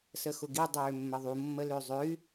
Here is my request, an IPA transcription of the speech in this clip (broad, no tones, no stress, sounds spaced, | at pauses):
s ə x ʊ ɡ i dˤ øː mː ə ðˤ u mː ə l ø zˤ ø y̯